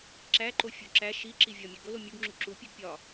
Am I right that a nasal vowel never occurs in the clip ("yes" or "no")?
yes